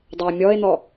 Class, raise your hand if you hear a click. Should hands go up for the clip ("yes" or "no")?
no